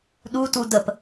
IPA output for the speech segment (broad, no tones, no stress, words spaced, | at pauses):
ɗutu dəp